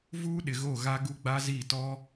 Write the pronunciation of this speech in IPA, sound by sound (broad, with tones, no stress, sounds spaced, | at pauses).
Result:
v uː˦ ɗ ɪ˨ ɣ o˦˨ ɣ a˦ ɡ u˦ ɡ͡b a˦ z i˦˨ t ɔ˦